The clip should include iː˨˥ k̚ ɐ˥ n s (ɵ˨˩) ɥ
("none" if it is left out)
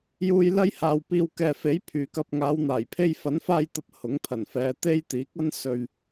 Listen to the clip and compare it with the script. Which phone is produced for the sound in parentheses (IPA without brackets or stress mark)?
ɵ˨